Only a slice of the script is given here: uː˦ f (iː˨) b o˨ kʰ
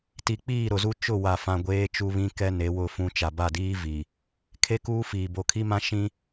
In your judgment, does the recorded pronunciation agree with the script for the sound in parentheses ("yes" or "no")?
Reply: yes